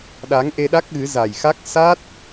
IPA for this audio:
ɗ a˨˦ ŋ ʔ e˧ ɗ a˦˥ k̚ ɣ ɨ˨˦ z a˨˩ j x a˦˥ k̚ s a˦˥ t̚

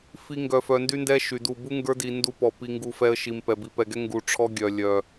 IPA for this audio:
f i˦ ŋ ɡ œ˨ f œ˨ n d y˦ n d ɛ˦ ʃ y˨ d u˦˨ b u˦ ŋ ɡ ə˞˦ d i˨ n d u˦ p ɔ˨ p i˦ ŋ ɡ u˦˨ f ɛ˦ ə̯ ʃ i˨ m p ɛ˨ b i˨ p ɛ˨ ɡ ɛ˦ ŋ ɡ u˨ ʈ͡ʂʰ ɔ˦ ɡʲ œ˨ lʲ œ˨

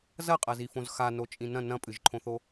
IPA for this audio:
z ɐ qʼ ɐ z i f õ z x a n o t͡ʃʼ ĩ n ɐ̃ n ɐ̃ pʼ ɨ ʒ ǃʰ õ θ o

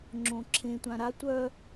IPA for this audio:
ŋ͡ǁ õ ǁʰ ẽ tʷ ã ɾ a tʷ œ

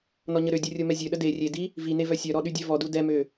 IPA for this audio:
n ɔ ɲ ə ɾ ø dʲ u rʲ o m ɛ zʲ ø ɗ ə d e rʲ e d i | v i n e v œ sʲ œ ɾ ɔ ɗ y dʲ œ v ɔ d u d ɛ m ø

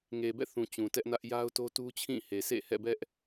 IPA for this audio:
ŋ e˨ b ɛ̰˦˨ θ ũ˨ t͡ɕ ũ˨ t ɛ˦ ʔ n ä˦ ʔ j a˦ ʊ̯ t o˦ t u˦ t͡ɕʰ ĩ˦˨ h e˨ sʰ ḛ˦˨ h ɛ̰˦˨ b ɛ˦ ʔ

